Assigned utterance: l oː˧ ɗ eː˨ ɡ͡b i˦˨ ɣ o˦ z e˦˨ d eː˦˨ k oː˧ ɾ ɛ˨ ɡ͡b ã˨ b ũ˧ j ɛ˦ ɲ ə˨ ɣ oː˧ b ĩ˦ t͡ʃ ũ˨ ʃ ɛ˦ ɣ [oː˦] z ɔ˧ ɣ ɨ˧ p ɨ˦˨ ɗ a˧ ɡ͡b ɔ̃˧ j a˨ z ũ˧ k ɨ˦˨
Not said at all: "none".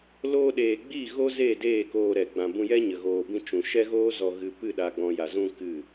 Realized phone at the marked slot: oː˦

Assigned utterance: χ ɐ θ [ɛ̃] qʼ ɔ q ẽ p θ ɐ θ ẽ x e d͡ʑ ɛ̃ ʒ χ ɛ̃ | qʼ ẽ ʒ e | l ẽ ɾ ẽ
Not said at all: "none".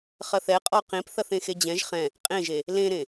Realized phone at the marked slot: ɛ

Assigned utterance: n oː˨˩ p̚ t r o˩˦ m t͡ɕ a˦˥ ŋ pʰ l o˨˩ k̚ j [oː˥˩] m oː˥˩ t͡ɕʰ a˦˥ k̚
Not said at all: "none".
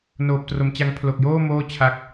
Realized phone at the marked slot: oː˥˩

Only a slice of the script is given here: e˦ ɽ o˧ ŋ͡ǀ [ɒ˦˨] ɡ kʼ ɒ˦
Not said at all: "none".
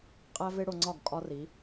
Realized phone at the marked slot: ɒ˦˨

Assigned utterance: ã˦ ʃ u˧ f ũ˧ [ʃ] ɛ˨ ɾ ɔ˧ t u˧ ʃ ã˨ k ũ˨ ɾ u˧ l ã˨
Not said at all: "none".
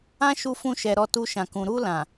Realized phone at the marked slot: ʃ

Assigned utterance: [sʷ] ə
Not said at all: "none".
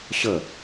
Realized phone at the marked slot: ɕ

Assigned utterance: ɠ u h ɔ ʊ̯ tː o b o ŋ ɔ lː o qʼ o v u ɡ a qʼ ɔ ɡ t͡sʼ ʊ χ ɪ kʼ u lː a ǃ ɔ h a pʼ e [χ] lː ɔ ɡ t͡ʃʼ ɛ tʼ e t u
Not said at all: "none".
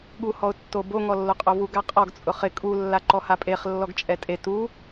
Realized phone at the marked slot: χ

